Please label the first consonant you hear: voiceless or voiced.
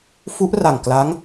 voiceless